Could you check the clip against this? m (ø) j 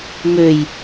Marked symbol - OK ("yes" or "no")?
yes